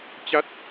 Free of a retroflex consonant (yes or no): yes